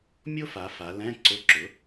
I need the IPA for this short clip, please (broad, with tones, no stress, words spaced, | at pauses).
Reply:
mʲo˥fa˩˧ fa˩˧lɛ̃˧˥˧ ǀʊ˧˥˧ǁʊ˩˥